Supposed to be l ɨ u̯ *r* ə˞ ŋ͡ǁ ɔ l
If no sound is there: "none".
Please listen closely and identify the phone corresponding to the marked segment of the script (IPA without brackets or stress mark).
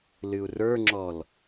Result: r